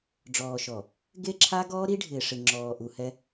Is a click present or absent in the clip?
present